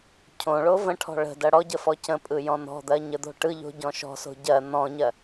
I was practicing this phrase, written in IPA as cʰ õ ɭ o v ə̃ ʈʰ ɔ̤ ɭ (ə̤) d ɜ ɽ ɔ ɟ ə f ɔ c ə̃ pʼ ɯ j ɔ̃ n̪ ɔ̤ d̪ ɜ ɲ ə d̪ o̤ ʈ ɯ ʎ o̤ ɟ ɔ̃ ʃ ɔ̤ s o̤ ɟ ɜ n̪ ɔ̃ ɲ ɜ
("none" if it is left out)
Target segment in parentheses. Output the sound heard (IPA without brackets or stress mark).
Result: ə̤